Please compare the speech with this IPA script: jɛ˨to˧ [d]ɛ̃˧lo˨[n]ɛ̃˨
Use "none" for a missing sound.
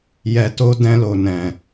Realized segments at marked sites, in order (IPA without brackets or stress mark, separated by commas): d, n